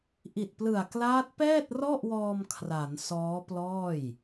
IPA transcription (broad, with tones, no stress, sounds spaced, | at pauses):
ʔ i˨˩ t̚ p l ɯ˨˩ a̯ k l aː˦˥ t̚ p ɛː˥˩ t̚ r ɔ˥˩ ʔ w ɔː˧ m kʰ r a˩˦ n s ɔː˦˥ p l ɔː˥˩ j